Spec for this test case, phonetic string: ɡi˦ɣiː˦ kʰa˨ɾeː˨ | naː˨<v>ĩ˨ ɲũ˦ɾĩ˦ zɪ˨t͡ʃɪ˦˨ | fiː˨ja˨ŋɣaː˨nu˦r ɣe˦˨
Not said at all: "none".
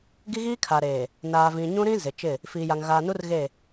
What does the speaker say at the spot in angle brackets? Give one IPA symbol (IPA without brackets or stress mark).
v